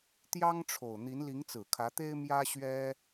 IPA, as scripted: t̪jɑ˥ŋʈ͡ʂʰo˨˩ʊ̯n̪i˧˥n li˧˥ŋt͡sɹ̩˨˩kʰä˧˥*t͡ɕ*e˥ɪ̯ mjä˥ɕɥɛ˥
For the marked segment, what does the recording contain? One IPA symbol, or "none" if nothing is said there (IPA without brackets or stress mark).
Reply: t̪